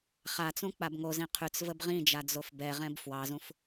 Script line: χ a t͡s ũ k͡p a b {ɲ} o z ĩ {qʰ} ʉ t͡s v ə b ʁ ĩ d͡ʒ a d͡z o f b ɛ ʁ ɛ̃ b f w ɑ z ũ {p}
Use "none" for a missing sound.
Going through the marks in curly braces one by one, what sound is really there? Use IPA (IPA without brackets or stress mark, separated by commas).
ŋ, qʰ, f